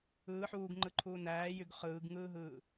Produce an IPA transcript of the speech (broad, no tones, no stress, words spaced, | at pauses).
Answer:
ɯː ħuːɡŋ͡ǃɯǃʰuː næːjyɡ χɯːɡŋɯːɦɯː